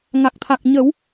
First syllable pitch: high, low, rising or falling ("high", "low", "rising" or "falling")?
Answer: low